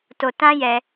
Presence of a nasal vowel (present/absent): present